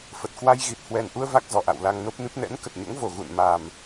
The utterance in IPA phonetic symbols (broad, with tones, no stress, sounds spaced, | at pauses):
f ə˨˩ t̚ k w a˧ j ɣ i˨˩ t̚ h w ɛ˨˩ n ʔ u˧ ə̯ v a˦˥ k̚ z ɔ˨˩ ʔ a̰˧˨ w l a˧ ŋ n o˦˥ p̚ n ɨ˦˥ p̚ n ɛ̰˧˥ n k ə˨˩ t̚ ɲ o̰˧˥ ŋ v o˧˩ ɣ ṵ˧˨ n m a˨˩ m